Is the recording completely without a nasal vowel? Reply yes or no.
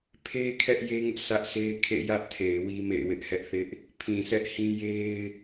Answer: no